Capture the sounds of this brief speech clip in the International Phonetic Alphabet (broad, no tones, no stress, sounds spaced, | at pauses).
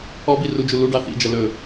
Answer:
ɔ b i r u d͡ʒ u l u ɖ ɑ θ ḭ d͡ʒ ɐ l ɵ